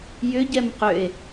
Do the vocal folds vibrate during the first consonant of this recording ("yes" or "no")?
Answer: yes